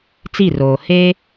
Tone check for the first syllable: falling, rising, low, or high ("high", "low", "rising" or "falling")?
falling